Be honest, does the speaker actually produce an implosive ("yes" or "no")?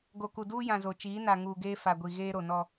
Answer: no